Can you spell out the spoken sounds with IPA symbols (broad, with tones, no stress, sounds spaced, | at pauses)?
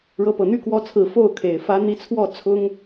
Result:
ɻ ɤ˧˥ p ɤ˨˩ n̪ y˥ k w ɔ˧˥ t͡sʰ ɹ̩˨˩ f o˥˩ ʊ̯ kʰ e˨˩ ɪ̯ f ä˧˥ n̪ i˧˥ t͡sʰ w ɔ˥˩ t͡sʰ ʊ˥ ŋ